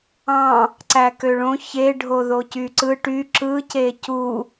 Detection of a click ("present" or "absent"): present